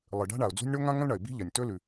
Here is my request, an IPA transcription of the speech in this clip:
lˠɨ˩ ɖa̤˥ɳa˩ʊ̯d͡zṳ˥nʲ ɳo˥ŋã˥ŋɐ̃˥lɳɐ˩ɪ̯ bi̤˥ʎɐ˩nʲtɵ˥lʉ˩

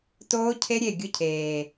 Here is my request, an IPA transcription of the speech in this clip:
toː˦ cʰe˦ɾʲe˦˨ ɡʲʊ˦cʰeː˨

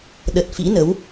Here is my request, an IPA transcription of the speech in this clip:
ɗə˨˩t̚fḭ˧˥nə˨˦w

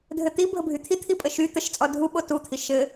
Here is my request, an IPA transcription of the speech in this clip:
dʱɘt̪i bʱəbʱyt̪ʰit̪ʰi pʼəʃy t̪əʃt͡sʼɔ dʱuɓo tut̪ʰi ʃɘ

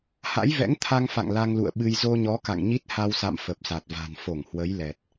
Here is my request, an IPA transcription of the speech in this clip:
ha̰˧˥jvɛ̰˧˥ŋ t̪ʰa˧ŋfa̰˧˨ŋ la˧ŋlṵ˧˨ə̯ ɓɨ˧j zo˧ɲɔ˨˦ ka̰˧˨ŋɲi˦˥t̚ ha˧wsa̰˧˨m fə˨˩p̚sa˨˩t̚va̤˨˩n fo˧˩ŋhwə˨˦j lɛ˨˩t̚

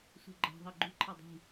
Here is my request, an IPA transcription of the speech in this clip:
sṳɡ͡ǃa̤ ðˤeɡ͡ǃṳ ǃʰadˤi̤

